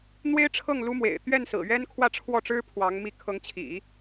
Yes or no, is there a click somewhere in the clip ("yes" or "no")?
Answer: no